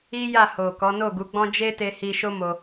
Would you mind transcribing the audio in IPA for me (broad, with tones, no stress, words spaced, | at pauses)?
i˦ja˦˨ho˨ kɔ˨˦no˦˨ɡu˨˦ɡ͡bɔ̃˦ d͡ʒe˦te˧ hi˧ ʃo˦mo˧